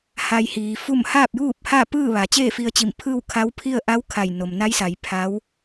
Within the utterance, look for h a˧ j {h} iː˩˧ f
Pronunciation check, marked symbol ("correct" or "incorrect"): correct